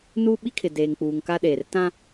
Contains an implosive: yes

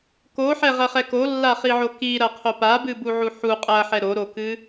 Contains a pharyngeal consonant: yes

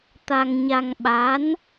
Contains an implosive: yes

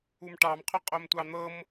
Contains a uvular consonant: yes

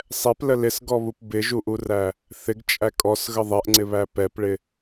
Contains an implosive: no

